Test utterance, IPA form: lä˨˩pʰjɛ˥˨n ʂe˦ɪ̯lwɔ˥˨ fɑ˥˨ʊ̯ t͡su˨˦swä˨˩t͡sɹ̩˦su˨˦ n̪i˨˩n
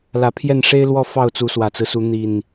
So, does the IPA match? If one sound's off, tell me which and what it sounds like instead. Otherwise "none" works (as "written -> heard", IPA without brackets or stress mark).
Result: none